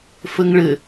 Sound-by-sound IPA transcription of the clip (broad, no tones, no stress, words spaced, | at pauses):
fəŋɭɘ